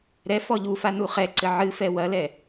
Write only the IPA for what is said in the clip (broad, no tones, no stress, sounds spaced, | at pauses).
ɾ ɛ f ɔ ʎ u f a n u χ ɛ ǀ ɘ ʕ ɨ f ɛ w ɐ l ɛ